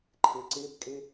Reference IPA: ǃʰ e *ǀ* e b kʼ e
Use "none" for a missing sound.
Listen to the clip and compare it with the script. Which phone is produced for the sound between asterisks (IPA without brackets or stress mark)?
ǀ